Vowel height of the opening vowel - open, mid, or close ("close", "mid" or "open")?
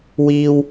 close